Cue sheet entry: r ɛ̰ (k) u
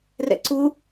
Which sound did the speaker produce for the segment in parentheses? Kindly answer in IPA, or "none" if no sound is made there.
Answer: ǀ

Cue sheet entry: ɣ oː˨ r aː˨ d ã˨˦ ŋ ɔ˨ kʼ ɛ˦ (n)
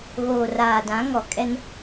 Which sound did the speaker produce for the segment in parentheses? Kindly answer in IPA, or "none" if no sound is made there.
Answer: n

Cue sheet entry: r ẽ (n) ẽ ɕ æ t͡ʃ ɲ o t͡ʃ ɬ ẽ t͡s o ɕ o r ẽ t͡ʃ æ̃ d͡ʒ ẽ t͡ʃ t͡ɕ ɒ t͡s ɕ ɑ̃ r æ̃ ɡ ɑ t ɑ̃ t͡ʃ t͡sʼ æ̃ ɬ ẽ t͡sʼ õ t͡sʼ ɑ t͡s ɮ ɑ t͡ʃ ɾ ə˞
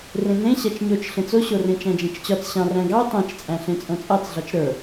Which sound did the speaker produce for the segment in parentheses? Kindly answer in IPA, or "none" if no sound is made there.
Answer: n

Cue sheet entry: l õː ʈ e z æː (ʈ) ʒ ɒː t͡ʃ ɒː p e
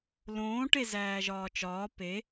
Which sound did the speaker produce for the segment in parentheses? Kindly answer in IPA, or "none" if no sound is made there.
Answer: none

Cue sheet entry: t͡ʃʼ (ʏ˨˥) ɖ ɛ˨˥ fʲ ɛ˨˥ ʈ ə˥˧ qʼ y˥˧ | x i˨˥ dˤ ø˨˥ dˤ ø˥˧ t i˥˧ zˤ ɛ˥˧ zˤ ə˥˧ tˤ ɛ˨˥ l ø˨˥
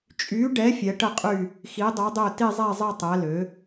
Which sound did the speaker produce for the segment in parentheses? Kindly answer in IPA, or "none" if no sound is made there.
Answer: y˨˥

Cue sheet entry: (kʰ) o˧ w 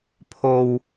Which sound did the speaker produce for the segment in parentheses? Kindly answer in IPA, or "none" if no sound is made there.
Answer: pʰ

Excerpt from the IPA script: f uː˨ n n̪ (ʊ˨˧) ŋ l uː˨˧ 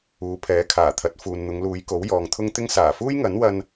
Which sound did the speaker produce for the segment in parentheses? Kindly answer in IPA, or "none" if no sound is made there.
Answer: ʊ˨˧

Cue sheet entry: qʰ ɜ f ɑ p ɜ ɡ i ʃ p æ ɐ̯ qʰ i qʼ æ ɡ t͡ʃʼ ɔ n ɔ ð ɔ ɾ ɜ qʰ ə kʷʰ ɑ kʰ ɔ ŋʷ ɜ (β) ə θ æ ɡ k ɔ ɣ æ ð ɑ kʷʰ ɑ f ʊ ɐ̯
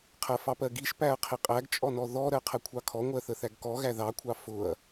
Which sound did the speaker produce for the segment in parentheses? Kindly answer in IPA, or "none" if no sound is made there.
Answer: θ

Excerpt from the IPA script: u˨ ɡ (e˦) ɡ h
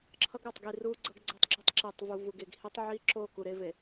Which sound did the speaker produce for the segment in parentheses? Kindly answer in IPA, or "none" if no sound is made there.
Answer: e˨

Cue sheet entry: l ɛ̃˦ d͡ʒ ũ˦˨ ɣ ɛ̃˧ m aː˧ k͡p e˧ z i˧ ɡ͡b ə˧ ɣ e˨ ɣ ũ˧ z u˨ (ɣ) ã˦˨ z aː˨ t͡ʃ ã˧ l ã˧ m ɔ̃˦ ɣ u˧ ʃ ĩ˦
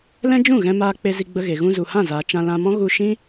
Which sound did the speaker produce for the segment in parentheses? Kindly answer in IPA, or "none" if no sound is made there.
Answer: h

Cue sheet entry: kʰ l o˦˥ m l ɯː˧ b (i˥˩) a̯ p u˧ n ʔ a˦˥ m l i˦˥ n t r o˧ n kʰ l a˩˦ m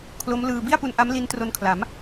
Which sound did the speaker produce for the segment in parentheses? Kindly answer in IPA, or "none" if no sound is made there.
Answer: i˥˩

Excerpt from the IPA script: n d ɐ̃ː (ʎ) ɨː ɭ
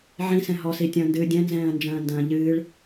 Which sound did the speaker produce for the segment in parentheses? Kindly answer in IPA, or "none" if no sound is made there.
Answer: ʎ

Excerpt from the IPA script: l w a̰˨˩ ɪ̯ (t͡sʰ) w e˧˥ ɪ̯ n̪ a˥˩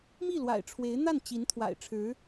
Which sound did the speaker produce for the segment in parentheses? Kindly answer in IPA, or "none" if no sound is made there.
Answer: ʈ͡ʂʰ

